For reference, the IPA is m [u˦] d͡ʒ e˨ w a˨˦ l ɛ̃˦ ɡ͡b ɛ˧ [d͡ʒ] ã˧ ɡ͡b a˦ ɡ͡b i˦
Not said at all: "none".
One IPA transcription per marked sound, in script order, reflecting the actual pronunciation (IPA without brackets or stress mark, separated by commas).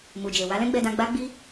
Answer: u˨, d